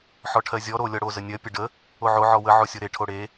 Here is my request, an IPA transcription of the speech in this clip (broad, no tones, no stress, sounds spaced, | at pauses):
ħ ɔ ʈʰ ɜ zʲ ɔ ɾ o lʲ ɔ ɽ o z ə nʲ ɜ pʲ ə ɖ ə | o ʕ o ʕ ɔ w ə ʕ o sʲ o ɾ e ʈʰ o ɽ e